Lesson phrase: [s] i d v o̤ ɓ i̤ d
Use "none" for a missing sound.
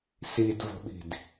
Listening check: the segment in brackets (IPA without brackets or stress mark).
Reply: s